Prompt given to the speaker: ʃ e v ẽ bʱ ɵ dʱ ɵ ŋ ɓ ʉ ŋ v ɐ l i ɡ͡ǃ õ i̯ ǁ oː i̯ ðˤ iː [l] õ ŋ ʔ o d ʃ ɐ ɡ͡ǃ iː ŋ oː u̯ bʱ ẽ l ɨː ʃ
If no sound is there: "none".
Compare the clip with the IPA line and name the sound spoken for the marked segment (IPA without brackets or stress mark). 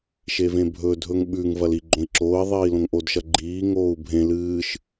l